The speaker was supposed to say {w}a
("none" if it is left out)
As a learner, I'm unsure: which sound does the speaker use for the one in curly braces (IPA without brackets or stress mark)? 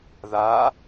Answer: ð